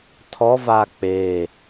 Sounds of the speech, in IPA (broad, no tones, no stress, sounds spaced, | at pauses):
tʰ ɔ v a k͡p e